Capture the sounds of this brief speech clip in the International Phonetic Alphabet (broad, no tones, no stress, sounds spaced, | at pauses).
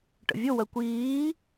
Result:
ʈ ə̰ vʲ ʊ w ɜ kʷ iː